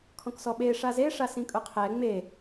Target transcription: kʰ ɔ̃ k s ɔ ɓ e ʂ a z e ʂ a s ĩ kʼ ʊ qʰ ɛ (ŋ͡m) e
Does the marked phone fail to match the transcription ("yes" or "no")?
no